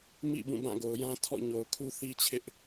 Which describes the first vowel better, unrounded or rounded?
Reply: unrounded